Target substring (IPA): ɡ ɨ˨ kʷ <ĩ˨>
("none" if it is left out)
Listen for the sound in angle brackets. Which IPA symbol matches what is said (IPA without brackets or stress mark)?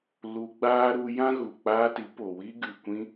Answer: ĩ˧